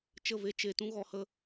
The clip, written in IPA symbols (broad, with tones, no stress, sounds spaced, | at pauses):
t͡ʃ ə˦˨ v e˦ t͡ʃ e˧ t ũ˦ ɣ ɔ˧ h ə˦